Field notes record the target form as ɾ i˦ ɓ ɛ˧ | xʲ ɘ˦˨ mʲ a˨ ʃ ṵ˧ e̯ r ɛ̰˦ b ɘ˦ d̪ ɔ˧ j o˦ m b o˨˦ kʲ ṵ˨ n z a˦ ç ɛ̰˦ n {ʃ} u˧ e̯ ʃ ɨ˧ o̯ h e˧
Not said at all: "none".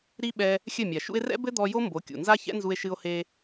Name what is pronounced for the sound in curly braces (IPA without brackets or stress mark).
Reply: z